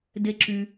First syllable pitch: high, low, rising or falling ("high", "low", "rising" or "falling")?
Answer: low